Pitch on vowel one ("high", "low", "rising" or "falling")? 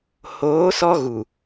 rising